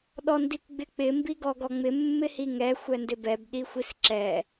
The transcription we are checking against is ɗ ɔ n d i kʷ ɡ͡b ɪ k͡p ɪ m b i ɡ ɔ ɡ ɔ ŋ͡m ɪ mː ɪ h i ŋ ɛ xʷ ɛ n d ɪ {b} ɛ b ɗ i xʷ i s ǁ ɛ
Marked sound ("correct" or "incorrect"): correct